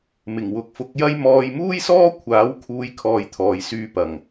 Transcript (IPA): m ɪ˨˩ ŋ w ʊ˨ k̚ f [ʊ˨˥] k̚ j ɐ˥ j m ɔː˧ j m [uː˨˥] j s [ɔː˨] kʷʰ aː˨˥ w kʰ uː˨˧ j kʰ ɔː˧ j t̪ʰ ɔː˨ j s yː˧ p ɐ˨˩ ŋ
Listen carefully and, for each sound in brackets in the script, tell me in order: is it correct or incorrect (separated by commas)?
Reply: correct, incorrect, incorrect